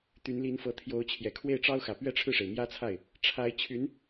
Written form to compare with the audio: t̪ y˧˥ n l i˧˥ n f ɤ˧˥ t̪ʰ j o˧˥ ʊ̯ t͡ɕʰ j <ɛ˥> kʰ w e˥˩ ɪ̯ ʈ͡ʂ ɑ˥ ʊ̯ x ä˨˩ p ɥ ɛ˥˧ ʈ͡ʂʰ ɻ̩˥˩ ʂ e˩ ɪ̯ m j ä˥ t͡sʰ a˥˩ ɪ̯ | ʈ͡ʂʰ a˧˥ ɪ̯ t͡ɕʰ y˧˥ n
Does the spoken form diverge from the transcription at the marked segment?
yes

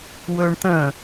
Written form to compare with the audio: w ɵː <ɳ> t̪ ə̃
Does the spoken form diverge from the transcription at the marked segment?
no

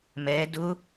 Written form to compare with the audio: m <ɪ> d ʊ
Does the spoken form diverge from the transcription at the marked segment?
yes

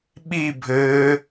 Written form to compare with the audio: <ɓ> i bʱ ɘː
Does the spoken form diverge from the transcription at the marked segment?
no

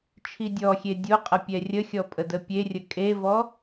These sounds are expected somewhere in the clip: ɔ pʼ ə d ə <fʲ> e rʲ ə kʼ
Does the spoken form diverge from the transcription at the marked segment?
yes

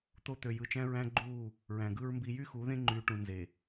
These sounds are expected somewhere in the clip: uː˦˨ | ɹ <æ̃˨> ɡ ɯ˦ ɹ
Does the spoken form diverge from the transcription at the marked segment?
no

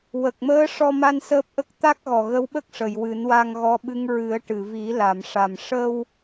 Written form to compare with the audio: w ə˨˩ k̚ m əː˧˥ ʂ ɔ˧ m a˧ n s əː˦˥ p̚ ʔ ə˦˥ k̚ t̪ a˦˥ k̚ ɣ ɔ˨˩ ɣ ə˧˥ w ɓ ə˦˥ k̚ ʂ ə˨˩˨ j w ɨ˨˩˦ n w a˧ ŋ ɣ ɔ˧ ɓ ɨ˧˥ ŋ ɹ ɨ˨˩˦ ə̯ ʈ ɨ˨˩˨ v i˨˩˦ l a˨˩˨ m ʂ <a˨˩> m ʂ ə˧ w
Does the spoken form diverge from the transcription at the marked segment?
no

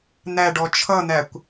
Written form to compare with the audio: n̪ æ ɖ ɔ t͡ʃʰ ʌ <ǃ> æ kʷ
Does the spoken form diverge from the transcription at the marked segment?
yes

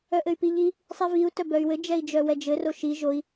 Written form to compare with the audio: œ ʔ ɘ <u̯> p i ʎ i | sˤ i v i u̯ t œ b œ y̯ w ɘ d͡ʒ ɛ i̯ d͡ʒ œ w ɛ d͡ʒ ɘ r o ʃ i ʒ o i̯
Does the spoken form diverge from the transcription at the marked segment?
yes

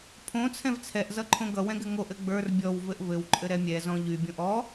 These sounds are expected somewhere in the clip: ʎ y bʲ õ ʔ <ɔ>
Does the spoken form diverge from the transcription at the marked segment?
no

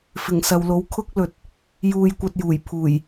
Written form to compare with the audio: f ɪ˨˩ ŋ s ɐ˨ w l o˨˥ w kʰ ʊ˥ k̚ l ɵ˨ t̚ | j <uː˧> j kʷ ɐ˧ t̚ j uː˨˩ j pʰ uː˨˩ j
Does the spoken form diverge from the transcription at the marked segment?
no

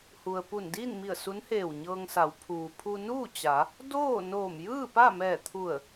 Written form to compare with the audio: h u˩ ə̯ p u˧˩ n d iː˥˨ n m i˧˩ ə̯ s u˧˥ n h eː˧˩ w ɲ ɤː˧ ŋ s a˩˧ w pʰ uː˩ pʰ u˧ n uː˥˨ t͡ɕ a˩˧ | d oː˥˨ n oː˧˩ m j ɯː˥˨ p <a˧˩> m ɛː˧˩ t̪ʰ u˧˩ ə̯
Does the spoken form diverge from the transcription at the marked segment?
yes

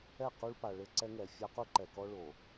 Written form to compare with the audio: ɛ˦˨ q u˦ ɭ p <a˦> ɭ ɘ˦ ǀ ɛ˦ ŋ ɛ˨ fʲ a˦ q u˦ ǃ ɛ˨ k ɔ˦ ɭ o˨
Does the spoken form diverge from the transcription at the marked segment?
yes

